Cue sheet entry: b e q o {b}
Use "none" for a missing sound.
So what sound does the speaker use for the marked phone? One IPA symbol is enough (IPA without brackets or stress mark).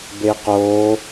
none